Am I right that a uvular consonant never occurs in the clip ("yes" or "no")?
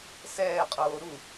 no